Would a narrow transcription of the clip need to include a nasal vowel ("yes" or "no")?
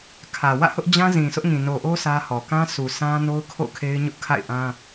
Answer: yes